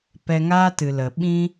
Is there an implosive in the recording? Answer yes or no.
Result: yes